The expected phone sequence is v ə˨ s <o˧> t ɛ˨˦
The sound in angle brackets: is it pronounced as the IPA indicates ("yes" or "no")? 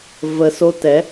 yes